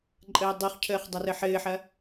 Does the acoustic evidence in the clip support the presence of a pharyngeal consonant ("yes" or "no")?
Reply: yes